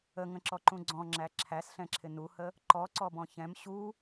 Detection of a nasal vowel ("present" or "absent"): present